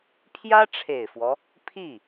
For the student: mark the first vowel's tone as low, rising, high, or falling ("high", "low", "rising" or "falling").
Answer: high